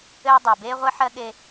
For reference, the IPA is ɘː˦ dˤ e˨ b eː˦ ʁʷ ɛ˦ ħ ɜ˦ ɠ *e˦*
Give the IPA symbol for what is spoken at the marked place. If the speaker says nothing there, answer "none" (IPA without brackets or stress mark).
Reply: e˦